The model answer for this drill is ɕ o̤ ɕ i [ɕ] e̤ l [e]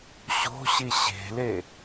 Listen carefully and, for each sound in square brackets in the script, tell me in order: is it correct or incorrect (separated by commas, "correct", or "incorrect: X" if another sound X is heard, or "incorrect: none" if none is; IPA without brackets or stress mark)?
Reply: correct, correct